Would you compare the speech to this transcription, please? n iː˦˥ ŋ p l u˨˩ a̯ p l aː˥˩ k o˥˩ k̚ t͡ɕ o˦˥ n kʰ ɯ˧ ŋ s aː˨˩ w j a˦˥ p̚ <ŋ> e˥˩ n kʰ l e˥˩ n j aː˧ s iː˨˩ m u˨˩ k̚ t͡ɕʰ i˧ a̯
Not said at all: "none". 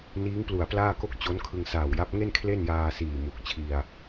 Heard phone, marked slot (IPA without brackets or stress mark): ŋ